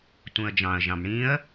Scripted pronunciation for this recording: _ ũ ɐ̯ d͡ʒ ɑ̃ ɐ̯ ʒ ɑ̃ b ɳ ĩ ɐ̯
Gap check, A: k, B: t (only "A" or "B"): B